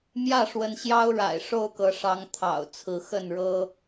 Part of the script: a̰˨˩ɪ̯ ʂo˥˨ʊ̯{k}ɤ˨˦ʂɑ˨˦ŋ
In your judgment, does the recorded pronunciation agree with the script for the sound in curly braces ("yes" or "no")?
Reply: yes